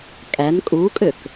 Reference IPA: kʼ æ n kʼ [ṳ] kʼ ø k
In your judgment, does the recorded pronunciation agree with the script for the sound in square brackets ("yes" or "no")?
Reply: no